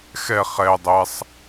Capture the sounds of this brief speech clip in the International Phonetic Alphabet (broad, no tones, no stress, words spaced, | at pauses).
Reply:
xɛ χɛ dˤɛsˤ